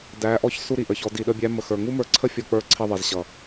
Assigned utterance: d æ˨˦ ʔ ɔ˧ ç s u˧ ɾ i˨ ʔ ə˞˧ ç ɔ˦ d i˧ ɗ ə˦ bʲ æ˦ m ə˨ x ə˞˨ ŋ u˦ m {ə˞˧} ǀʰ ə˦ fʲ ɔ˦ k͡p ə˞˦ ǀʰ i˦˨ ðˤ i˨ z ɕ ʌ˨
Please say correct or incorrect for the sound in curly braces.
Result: correct